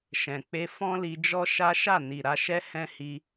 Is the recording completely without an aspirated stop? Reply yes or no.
yes